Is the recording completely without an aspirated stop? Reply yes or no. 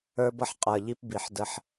yes